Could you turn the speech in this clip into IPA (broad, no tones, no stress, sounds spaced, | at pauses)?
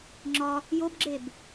ŋ͡ǁ ɒ | j o b ɡ͡ǁ e b